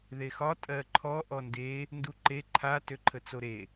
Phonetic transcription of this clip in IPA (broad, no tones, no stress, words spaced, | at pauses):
ðexɒ tʼɜǃʰɔ ʔɔnde | nduǃe ǃʰa tøǃʰət͡soɾe